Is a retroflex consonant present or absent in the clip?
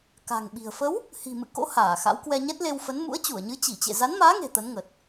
absent